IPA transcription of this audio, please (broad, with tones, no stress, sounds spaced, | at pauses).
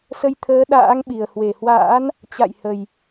s ə˧ j t̪ʰ əː˨˦ ɗ a̰ː˧˥ ŋ ɓ i˨˩ ə̯ h w e˧˩ h w a̰ː˧˥ n | t͡ɕ a̰˧˨ j h ə˨˩ j